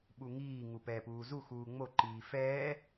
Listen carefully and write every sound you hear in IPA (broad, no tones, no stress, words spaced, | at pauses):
ɓuŋiː ŋupɛːpuːzu xuːŋ͡mo ǃiːfɛː